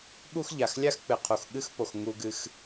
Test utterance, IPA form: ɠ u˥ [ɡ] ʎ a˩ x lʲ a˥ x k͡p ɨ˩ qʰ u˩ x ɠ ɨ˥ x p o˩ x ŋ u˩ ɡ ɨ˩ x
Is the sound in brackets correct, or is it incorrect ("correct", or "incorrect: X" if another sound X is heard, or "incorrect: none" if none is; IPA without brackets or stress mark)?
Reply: incorrect: x